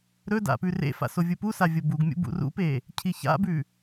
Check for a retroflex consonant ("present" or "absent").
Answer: absent